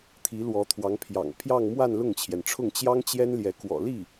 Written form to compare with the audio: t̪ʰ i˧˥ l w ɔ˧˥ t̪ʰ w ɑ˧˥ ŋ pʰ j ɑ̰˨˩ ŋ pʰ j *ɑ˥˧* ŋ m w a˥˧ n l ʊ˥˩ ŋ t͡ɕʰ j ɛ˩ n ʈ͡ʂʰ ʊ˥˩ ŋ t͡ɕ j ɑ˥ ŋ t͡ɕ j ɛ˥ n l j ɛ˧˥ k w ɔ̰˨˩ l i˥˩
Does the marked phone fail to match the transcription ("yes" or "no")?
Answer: no